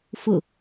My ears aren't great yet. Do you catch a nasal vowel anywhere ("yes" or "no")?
no